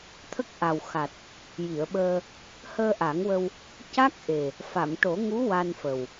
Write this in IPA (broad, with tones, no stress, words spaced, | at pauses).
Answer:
t̪ʰə˦˥k̚ʔa˨˩wxa˨˩t̚ | ji˨˩˨ə̯ɓəː˧ | həː˧ʔa˨˩˦ŋwə˧w | ca˦˥k̚ʔe˨˩ | fa˨˩˨mʈo˨˩˦ŋu˧˥ wa˧nfə˨˩w